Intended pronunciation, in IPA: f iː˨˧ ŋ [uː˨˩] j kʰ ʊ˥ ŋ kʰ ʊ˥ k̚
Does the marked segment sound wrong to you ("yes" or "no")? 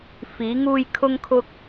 yes